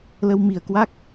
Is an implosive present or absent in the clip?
absent